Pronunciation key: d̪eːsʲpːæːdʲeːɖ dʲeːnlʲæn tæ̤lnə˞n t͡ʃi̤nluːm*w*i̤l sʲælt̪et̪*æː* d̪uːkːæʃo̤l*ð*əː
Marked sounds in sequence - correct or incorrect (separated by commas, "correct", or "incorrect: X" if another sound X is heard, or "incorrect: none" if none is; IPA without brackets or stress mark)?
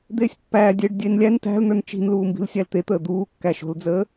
incorrect: b, incorrect: əː, incorrect: d͡z